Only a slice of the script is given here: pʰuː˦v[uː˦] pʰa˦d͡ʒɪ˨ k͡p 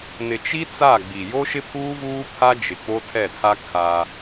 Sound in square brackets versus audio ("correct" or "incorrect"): correct